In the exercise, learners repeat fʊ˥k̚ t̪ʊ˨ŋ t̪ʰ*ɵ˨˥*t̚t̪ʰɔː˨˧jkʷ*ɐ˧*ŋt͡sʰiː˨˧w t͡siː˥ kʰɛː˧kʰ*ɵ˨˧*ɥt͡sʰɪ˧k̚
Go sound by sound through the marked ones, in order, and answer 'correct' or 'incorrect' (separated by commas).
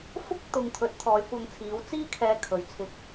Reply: correct, correct, incorrect